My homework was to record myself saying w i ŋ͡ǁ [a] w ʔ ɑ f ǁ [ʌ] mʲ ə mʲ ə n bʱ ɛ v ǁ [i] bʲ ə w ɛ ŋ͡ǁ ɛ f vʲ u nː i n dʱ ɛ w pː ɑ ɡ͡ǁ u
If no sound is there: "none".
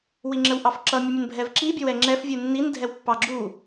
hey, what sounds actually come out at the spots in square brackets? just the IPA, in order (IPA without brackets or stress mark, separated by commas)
ə, ʌ, i